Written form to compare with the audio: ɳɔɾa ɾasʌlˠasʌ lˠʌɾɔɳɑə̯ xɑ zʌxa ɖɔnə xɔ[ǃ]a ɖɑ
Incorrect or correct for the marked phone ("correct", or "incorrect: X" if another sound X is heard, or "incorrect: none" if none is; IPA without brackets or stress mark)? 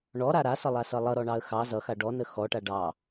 incorrect: ʈ